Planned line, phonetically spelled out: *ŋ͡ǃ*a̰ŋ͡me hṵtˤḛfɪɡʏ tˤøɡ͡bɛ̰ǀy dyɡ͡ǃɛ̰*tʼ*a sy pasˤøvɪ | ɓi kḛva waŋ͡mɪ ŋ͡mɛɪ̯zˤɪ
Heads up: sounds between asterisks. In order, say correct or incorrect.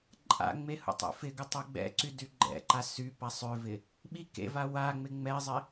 incorrect, incorrect

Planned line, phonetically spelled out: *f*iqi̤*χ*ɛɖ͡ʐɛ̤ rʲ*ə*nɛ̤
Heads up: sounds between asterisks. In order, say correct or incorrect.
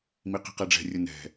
incorrect, incorrect, correct

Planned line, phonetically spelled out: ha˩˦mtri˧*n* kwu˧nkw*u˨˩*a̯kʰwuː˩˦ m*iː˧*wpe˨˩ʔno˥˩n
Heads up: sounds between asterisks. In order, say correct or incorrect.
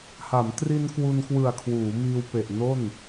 correct, incorrect, correct

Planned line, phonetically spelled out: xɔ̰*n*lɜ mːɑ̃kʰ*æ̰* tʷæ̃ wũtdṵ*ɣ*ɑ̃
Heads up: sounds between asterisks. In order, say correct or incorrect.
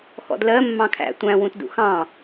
incorrect, correct, incorrect

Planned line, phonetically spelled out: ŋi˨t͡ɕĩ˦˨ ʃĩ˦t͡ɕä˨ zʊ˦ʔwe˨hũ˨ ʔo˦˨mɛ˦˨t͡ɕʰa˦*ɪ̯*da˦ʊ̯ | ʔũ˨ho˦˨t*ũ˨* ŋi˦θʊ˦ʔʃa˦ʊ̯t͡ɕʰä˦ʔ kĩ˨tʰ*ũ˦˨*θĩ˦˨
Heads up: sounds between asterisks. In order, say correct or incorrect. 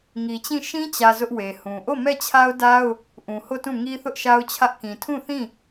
incorrect, incorrect, correct

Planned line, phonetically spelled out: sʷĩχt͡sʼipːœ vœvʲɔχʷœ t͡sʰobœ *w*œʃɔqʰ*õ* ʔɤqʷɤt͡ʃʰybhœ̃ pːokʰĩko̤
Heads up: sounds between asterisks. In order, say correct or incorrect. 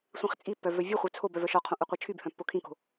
incorrect, correct

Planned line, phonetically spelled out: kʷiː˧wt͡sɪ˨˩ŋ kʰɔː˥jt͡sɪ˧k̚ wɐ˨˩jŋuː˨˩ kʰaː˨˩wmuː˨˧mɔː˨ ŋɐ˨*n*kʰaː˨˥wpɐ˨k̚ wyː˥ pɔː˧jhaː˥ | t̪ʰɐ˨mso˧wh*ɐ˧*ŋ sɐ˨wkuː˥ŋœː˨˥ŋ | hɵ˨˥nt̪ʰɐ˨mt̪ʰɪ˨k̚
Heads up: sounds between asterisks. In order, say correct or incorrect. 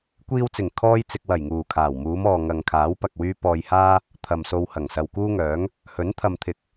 incorrect, incorrect

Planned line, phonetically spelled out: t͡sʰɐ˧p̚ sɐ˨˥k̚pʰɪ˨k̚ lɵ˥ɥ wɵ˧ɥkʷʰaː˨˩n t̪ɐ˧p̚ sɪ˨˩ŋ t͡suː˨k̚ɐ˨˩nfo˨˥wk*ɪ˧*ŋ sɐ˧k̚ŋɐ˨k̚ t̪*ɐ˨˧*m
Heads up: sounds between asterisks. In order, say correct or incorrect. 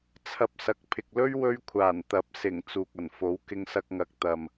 correct, incorrect

